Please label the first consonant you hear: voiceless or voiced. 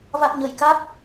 voiced